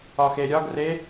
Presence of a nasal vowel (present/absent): absent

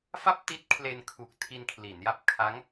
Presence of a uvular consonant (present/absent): absent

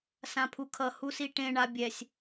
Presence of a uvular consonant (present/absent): absent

